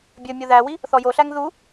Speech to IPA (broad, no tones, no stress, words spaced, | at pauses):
bʲɵ mʲoðæwi | θɔjoɬæŋ ðu